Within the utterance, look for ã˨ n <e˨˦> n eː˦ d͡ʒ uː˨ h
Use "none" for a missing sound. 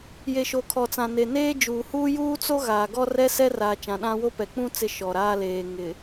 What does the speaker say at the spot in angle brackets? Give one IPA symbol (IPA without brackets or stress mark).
e˨